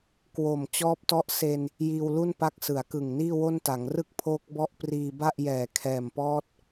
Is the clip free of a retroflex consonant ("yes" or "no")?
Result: yes